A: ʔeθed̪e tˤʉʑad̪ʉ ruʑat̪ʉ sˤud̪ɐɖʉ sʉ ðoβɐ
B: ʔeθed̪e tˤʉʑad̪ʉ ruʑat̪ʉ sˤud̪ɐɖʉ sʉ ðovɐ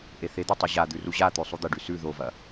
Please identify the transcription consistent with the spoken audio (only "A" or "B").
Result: B